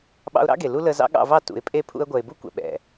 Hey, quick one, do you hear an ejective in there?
yes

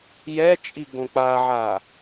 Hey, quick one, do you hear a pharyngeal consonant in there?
yes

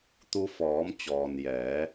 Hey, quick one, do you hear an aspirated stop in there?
no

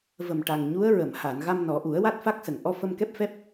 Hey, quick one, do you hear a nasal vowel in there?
no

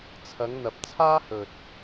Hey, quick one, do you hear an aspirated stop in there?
yes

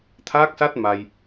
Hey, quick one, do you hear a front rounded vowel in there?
no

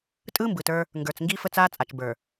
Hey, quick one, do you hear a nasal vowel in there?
no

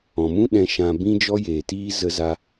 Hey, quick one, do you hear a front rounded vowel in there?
no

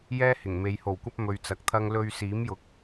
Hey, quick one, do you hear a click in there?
no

